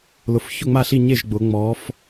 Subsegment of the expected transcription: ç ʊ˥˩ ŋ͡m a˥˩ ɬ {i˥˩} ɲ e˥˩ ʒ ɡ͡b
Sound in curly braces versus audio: correct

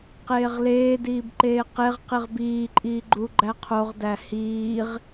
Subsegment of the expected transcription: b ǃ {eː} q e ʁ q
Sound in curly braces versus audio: correct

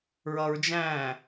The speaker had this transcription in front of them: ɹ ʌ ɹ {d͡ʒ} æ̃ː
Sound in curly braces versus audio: correct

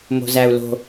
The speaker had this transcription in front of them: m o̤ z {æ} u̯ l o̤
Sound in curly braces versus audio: correct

